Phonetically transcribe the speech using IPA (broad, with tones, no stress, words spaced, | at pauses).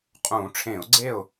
qʼũː˧˩˧ʈ͡ʂʰẽ˧˩˧ʊ̯ɡ͡ǀe˥˨ʊ̯